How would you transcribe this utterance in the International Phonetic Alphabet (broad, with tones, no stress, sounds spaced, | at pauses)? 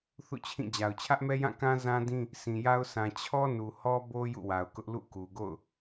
θ ṵ˦˨ t͡ɕʰ ĩ˦˨ d͡ʑ a˨ ʊ̯ t͡ɕʰ ä˦ ʔ m ɛ˦ j ã˦˨ k ã˦ z ã˦ d ĩ˦ | s ĩ˨ j a˦ ʊ̯ sʰ ã˨ t͡ɕʰ ɔ˦ n u˨ h ɔ˦ b o˦ j ṵ˦˨ w a˨ ʊ̯ k ʊ˦ ʔ l ṵ˦˨ k u˨ ɡ o̰˦˨ ʊ̯